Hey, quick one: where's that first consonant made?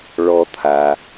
retroflex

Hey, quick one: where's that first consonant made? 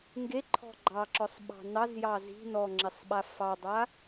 velum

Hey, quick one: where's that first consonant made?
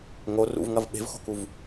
velum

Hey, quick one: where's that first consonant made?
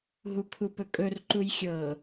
throat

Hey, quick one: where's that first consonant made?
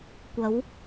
velum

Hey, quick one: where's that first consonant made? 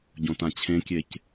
palate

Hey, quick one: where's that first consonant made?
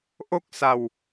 throat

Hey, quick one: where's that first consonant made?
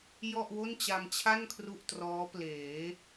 palate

